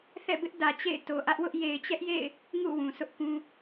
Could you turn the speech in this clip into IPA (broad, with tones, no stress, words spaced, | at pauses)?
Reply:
θɛ̰˦˨bɪ˦ʔdä˨ t͡ɕḛ˦˨ɪ̯ to˨ʔä˦ʔwʊ˦ʔ je˨ɪ̯t͡ɕɛ˦ʔjḛ˦˨ɪ̯ | ŋṵ˦˨ wũ˨sʰʊ˦ʔkũ˦